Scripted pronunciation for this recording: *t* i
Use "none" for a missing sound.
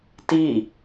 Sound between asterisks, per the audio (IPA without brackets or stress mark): t